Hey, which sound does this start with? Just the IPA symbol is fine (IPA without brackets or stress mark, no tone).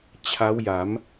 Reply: t͡ɕʰ